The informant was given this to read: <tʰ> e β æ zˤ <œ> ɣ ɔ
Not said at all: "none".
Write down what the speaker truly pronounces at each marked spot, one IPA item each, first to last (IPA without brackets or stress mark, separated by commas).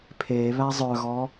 pʰ, œ